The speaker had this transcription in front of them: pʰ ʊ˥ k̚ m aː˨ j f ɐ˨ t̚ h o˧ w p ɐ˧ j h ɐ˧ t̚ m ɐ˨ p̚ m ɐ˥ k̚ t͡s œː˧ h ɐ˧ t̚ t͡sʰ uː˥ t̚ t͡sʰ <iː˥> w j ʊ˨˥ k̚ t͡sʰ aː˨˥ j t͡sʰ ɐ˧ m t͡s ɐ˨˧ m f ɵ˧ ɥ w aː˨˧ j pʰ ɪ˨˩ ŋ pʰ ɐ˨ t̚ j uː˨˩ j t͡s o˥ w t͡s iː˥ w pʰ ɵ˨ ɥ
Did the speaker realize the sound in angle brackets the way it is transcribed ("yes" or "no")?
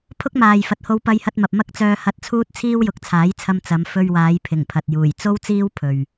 yes